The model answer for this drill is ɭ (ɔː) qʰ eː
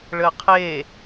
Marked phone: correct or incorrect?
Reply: incorrect